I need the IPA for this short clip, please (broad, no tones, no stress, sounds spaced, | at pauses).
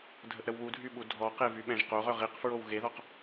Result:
dʱ ə ʔ ɾ ə w β u dʱ y ɓ u dʱ ɔ q e v y ɓ ɛ̃ ʒ q o ʁ œ ʁ i q f ɹ o w ɣ e ð ɔ q